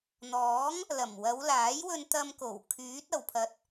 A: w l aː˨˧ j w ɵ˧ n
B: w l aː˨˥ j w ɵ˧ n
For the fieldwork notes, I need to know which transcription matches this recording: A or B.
B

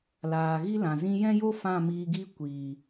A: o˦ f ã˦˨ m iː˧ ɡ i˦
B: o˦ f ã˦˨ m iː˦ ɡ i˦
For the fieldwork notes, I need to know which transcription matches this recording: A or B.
A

